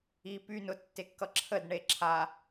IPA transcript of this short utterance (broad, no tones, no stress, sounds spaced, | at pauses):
i p y n ʊ tː e kː ʌ ǁʰ ə d ɳ e ǁʰ a